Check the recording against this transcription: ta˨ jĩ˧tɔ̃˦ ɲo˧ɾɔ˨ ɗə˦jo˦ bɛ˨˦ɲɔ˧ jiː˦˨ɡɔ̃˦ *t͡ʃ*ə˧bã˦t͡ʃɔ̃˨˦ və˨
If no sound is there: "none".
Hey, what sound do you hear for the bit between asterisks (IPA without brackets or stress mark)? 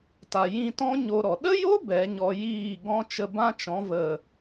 t͡ʃ